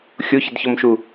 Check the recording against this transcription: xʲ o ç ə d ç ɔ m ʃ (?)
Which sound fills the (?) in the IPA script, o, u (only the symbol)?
u